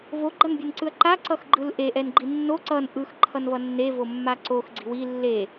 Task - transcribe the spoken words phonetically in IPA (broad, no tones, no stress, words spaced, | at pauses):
voɡ͡ǃʌnbʲenǀɯɐ̯ ǃa ǀʌxɡ͡ǃɯlʔe ʔɛnɡ͡ǃinːo ǀʌn ʔɯx ǃʰʌnvʌnːevo mːaǀox ɡ͡ǀi̤wi lːe